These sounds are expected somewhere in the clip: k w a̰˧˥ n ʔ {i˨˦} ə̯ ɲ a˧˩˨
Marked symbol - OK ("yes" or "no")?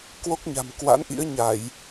no